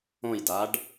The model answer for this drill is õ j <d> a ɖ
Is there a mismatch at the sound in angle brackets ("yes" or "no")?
no